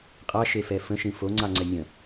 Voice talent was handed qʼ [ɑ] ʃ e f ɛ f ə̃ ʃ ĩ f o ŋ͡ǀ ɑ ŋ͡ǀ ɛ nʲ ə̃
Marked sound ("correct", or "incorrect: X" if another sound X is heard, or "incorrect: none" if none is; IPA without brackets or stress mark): correct